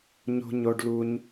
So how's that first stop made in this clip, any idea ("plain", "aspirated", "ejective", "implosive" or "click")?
plain